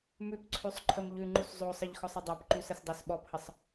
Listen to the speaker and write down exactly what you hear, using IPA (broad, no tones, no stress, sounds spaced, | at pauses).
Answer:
m ʉ p ǀʰ ʉ sˤ ǃʰ ə m ʎ ʉ ŋ͡ǃ u s zˤ o sˤ ə ʎ x ɔ sˤ ə dˤ ɑ p ǃ ʉ s ə s dˤ o s ɓ ɔ p h ə sˤ